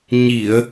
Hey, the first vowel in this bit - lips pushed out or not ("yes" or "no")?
no